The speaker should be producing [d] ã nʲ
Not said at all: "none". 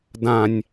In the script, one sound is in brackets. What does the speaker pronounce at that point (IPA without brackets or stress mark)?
d